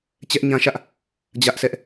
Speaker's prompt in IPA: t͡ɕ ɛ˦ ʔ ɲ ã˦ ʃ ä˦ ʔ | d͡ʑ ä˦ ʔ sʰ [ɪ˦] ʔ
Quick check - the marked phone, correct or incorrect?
incorrect: ɛ˦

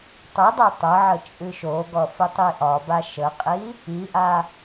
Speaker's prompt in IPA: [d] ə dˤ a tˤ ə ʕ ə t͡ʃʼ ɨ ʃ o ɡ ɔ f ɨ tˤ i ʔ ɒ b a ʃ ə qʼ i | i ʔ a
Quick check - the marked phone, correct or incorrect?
incorrect: tˤ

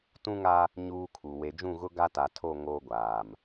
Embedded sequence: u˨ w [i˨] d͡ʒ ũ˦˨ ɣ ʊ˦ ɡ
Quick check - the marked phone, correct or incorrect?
incorrect: e˨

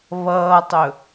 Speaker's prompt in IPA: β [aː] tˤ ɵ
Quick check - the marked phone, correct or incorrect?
incorrect: ʌː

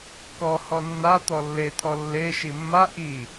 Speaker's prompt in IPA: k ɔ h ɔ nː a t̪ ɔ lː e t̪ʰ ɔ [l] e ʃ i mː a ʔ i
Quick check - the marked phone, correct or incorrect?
incorrect: lː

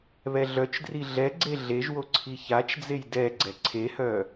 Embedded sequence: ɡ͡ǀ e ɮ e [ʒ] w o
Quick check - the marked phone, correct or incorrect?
correct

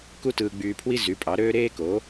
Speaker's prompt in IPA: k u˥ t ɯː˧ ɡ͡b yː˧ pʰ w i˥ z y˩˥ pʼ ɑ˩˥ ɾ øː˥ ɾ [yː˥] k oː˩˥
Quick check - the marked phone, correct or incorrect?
incorrect: eː˥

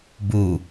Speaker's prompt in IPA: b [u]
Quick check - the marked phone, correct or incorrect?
correct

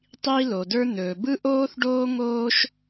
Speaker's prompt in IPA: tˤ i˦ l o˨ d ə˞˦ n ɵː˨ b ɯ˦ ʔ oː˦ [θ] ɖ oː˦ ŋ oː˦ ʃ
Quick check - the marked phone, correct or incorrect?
correct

